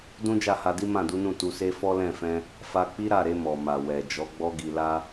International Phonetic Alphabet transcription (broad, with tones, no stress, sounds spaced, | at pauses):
d ũ˦ d͡ʒ a˦˨ h a˧ d i˦ m ã˦˨ d u˨˦ n ũ˦˨ t u˧ s e˦ f ɔ˦ l ɛ̃˦˨ f ɛ̃˧ | f a˧ k͡p i˦ ɾ a˦˨ ɾ e˧ m ɔ˨ m a˨ w ɛ˨ d͡ʒ ɔ˨˦ ɡ͡b ɔ˦ ɡ i˧ l a˧